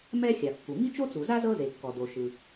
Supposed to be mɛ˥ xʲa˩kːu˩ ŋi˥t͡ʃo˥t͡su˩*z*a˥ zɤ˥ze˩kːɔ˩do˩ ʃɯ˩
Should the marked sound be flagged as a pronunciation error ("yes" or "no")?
no